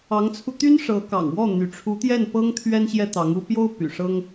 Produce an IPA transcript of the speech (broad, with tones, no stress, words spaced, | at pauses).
ɑ˧˥ŋt͡sʰu˧t̪y˥n ʂɤ˧˥kɑ̰˨˩ŋwɔ˥˩ n̪y˧˥ ʈ͡ʂʰu˧˥t̪jɛ˥˩n pɤ˥ŋt̪ʰɥɛ˥n ɕjɛ˥t̪ɑ˧˥ŋu˥ pjo˥ʊ̯ py̰˨˩ʂɤ˥ŋ